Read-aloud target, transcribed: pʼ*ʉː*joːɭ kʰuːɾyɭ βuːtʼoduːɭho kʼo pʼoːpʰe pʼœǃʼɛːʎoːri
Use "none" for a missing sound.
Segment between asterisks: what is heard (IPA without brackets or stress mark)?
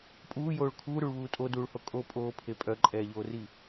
uː